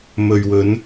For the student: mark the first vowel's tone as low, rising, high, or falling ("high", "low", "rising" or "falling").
low